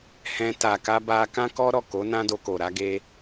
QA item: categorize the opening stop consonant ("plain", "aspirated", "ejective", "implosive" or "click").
plain